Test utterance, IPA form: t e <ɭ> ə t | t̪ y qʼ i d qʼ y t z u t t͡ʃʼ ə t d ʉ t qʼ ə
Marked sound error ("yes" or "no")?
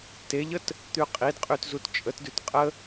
yes